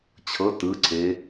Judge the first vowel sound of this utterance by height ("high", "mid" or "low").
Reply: mid